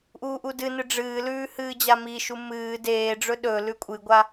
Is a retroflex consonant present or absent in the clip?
present